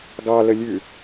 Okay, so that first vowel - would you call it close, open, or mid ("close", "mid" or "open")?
open